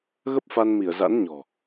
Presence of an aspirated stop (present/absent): absent